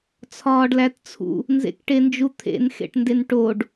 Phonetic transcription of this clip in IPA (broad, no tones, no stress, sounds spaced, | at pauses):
t͡sʰ ɒː ɖ l æ t t͡sʰ ṵ | n z ḛ k ʈ e n d͡ʒ u t̪ʰ ḛ n x ḛ ʈ n d e n ʈ o ɖ